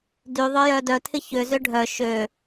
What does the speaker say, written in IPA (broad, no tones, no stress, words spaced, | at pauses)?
dyðˤœjœ dœtʰɪ çøzø ɖʱœ ʃø